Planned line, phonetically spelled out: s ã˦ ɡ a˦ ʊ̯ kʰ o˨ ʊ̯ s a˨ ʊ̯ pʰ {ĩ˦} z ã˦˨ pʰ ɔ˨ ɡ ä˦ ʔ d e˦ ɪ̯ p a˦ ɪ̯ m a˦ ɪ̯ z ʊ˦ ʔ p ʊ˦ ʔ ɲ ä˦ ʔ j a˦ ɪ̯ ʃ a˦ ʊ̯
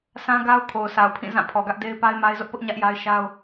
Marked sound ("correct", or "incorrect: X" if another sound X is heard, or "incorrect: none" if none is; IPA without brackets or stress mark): incorrect: ĩ˦˨